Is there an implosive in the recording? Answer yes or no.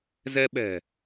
yes